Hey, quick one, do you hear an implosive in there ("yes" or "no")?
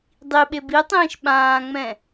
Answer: yes